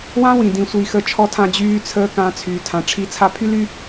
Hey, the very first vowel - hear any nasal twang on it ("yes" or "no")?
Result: yes